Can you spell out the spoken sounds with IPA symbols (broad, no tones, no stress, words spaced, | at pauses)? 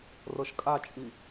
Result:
rɤʃkʼat͡ʃʼi